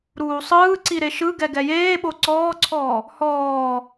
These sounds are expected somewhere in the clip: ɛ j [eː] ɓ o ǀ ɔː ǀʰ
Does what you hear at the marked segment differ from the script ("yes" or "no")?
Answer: no